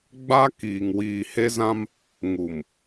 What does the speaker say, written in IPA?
ɡ͡b a˦ k iː˨ ŋ w iː˨ h e˦ z ã˦ m | ŋ u˨ m

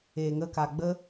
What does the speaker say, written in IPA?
eː˨ ŋ ə˧ k a˨ ɡ͡b ə˦

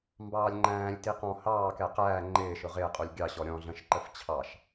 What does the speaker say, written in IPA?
m b ɑː lʲ ŋ͡ǃ æ̃ː lʲ t i q ɔ̃ h ɑː k ɛ q æː ŋ͡ǃ ɪː ʃ ʊ ʁ ɪː qʼ u lʲ ɡʲ ɑ ɕ ɔ ɾʲ ɔ̃ ɮ ə̃ ʃ ǃ ə f t͡ɕʰ ɑ ʃ

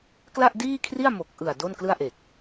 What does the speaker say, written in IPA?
k l a˥˩ ʔ d iː˥˩ kʰ r i˥˩ a̯ m o˨˩ k̚ ʔ ɯ˨˩ a̯ d o˥˩ n k l ɯ˥˩ a̯ ʔ e˨˩ k̚

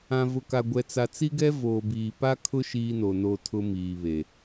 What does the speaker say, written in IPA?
ã˨ v ʊ˨ k a˨ ɡʷ ɛ˨ t͡s a˨ t͡s i˦ ɡ ɛ˦ v oː˨ b iː˨ p a˦ kʰ ʊ˦ ʃ iː˦ n o˨ n o˦˨ tʰ ʊ˦ m iː˨ β e˨

